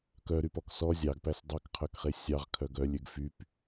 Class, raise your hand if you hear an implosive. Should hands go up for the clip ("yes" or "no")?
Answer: no